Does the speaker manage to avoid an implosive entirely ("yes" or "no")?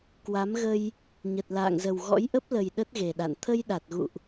no